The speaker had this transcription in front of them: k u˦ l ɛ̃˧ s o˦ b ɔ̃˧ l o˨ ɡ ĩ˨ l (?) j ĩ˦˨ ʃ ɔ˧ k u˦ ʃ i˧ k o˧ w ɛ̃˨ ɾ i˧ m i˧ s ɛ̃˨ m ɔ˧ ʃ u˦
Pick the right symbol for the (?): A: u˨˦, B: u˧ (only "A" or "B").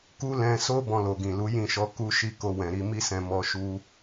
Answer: A